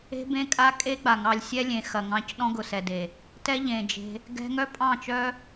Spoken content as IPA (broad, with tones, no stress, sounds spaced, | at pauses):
e̤˦ b ẽ˦ kʼ a˦ kʼ e˦ ɡ͡b a˨ ŋ ɑ˧ lʲ sʲ ɛ˦ lʲ ẽ˨ x ɐ˨ ŋ ɑ̃˧ c ɗ ɔ̃˦ ɡ ʊ˨ s ɛ˨ d e˨ | t ɛ˦ ʎ ẽ˨ d͡ʒ e̤˧ | ɡ ɛ̤˧ ŋ œ˦ pʼ ɑ̃˦˨ t͡ʃ œ˦